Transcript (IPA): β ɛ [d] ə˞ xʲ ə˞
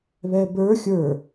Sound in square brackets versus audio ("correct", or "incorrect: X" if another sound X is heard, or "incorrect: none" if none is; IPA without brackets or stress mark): incorrect: b